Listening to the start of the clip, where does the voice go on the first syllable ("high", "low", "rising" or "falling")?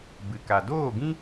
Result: low